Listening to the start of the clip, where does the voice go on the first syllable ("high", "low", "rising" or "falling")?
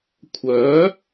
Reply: rising